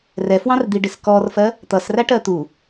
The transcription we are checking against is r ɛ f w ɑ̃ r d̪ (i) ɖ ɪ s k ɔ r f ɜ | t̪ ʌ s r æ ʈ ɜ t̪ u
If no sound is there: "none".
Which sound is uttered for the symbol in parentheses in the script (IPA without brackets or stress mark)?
i